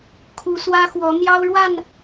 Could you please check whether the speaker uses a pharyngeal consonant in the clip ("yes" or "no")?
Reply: no